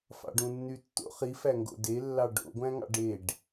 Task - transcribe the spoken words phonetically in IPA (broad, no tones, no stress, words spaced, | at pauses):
fɑ̰ɖũnːytːo̰χ ifæŋɡo̰ de lːɑɖo̰ɡʷæ̃ŋɑ̰ ɖeɖ